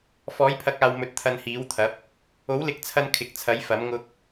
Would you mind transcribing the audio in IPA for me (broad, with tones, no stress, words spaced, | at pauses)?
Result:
fɔː˨˥jpʰɐ˨˥k̚aː˨wmɵ˨˥t̚ t̪ʰɐ˧nhiː˨˥wt̪ʰɐ˨˥p̚ | o˨˥wlɪ˨˥k̚t͡sʰɐ˧n kʰɪ˨k̚t͡sʰɐ˨˥jfɐ˨˥m ŋʊ˧k̚